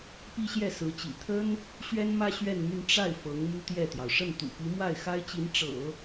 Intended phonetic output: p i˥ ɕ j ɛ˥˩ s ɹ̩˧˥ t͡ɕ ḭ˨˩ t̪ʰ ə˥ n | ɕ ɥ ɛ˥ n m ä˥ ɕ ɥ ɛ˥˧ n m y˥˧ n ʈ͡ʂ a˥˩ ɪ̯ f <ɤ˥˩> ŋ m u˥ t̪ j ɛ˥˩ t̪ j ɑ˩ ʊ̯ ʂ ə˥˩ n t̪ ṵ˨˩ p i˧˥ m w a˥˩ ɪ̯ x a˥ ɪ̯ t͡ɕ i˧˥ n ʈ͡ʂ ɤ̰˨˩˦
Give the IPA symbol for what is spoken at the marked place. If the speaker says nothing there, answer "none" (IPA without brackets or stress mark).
ɤ˧˥